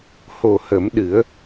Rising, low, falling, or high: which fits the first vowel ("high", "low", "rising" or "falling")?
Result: low